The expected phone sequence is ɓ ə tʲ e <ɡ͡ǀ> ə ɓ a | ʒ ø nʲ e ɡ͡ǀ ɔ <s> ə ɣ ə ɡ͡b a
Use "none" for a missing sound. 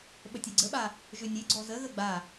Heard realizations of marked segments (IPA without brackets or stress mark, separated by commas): ɡ͡ǀ, z